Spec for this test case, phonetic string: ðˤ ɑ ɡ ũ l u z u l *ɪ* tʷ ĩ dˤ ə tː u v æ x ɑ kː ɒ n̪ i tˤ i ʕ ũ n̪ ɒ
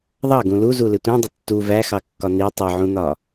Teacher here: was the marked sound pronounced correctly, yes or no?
yes